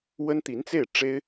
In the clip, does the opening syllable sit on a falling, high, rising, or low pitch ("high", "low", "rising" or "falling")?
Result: high